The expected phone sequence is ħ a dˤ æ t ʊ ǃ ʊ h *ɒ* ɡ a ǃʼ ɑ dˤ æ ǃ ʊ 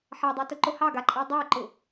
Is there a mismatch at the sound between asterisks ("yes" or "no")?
yes